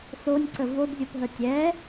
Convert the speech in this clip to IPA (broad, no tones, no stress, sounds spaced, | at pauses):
s o nʲ ǀ ə v o d zʲ o p ɦ ə tʲ ɛ